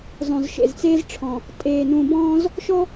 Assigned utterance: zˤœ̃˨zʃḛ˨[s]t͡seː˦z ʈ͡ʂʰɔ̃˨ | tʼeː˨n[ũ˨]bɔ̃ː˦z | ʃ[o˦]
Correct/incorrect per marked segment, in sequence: incorrect, correct, incorrect

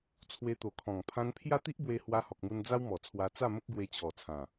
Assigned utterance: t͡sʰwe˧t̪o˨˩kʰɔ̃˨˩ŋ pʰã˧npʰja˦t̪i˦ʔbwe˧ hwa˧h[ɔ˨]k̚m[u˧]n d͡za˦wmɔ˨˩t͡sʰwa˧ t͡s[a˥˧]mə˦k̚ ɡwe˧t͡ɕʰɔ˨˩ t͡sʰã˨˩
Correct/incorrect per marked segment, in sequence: correct, correct, correct

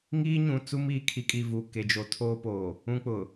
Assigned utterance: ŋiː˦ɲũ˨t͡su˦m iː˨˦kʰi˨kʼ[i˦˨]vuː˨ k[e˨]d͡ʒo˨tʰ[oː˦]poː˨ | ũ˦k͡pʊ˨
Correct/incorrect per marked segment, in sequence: correct, correct, correct

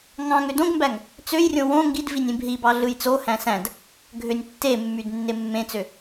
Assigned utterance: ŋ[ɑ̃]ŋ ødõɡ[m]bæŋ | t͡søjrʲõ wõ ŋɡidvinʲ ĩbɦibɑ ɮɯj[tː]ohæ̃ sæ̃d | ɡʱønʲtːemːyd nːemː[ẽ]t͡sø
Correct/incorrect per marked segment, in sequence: correct, correct, incorrect, correct

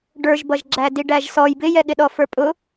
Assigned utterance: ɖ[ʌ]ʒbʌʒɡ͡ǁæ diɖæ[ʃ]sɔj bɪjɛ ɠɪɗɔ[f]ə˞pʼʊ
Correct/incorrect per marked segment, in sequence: incorrect, incorrect, correct

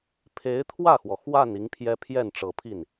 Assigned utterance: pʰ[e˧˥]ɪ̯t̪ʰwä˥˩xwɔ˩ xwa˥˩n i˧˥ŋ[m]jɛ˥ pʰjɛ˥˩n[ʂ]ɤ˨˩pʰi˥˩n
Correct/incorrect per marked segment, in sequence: correct, incorrect, incorrect

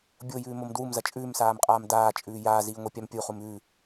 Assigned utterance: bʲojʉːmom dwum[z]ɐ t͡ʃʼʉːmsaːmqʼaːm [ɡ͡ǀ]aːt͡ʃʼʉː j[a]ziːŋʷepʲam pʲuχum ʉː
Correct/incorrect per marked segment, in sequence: correct, incorrect, incorrect

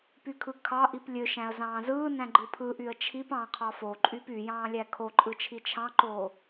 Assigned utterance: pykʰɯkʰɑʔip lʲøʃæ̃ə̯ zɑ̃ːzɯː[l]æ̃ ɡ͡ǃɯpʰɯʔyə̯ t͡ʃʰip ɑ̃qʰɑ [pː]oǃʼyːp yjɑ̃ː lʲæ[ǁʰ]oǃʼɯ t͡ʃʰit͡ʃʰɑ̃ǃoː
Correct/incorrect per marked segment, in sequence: incorrect, incorrect, incorrect

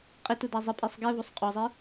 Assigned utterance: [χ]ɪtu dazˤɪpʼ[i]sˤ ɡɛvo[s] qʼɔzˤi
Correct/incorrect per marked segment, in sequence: incorrect, correct, incorrect

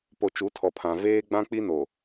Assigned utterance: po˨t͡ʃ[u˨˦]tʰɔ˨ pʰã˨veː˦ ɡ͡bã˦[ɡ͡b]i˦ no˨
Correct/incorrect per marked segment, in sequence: correct, incorrect

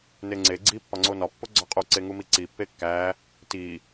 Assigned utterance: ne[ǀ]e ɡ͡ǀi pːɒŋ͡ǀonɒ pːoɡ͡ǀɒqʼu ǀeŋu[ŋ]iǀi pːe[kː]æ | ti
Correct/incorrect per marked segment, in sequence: incorrect, incorrect, correct

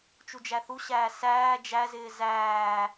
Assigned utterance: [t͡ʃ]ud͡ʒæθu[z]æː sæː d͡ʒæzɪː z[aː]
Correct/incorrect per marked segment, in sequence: correct, incorrect, incorrect

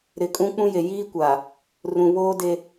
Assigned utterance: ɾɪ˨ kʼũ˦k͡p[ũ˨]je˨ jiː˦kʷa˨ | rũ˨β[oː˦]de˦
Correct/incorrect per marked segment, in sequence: incorrect, correct

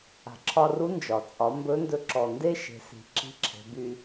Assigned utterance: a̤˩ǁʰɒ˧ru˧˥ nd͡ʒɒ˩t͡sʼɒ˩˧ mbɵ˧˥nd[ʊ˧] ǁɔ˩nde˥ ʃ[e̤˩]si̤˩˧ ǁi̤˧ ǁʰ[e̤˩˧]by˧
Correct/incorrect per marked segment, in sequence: incorrect, incorrect, correct

